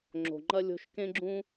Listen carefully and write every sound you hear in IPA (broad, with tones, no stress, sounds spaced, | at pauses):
ŋ͡ǁ o̤˨ ŋ͡ǃ ɐ˦ lʲ o̤˧ ʃ k ẽ˦ ɡ͡ǁ ũ˦